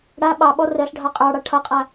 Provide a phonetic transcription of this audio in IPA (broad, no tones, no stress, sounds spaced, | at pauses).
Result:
ɽ a ɓ ɑ ɓ ɔ r ɜ ɬ ɖʱ ɑ qʼ ɑ ɽ ɑ ʈʰ ʌ qʼ a